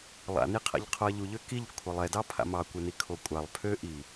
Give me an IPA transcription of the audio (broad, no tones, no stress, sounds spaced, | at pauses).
lˠ a̰ n i qʰ a̰ ʎ qʰ o ɐ̯ ʎ u ʎ ø k i ʎ kʷʰ ɛ lˠ ɛ d ɑ pʰ a̰ m ɑ kʷ ɛ n i kʰ o kʷʼ a lˠ pʰ ø ʔ i